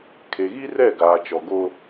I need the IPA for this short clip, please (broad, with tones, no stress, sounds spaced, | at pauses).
kʰ e˨ ɣ i˦ r ɛ˦˨ ɡ aː˨ t͡ʃ ɔ˨ ɡ o˦